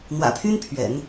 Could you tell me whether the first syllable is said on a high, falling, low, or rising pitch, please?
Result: low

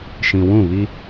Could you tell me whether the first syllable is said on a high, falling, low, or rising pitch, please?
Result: low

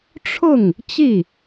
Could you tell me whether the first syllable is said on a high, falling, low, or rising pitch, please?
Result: falling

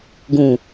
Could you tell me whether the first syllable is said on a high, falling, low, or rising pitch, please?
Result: low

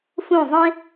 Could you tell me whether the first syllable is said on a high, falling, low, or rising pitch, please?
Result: falling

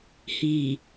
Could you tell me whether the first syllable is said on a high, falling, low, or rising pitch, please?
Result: low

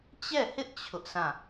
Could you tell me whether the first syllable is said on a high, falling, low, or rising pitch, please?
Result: falling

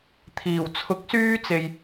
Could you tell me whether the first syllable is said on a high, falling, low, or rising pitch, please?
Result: low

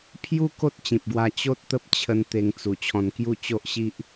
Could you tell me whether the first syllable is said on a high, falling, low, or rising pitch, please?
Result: high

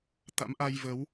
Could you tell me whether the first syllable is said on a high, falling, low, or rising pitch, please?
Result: rising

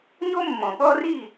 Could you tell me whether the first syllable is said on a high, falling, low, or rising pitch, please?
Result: high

